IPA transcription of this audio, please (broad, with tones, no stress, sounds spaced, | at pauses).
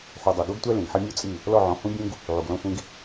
ħ u˨ dˤ ɛ˨ ɡ o˦ ɡ tʷ ɛ˦ l ĩ˨ ɡ ħ ɛ˦ mʲ u˦ t͡sʼ i˦˨ | l ɔ˦˨ ʕ ɔ̃˨˦ h ũ˦ bʲ ũ˦ ɡ | ʕ u˨ ɡ l ɔ̃˦ sʷ ĩ˦ ɡ